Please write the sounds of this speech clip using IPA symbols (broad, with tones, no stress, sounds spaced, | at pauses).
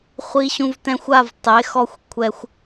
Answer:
χʷ i˧ ɕ ũ˧ v t ɛ̃˧ xʷ a˦˨ v tˤ e˨˦ x ɔ˦˨ xʷ kʷʰ ɛ˦ xʷ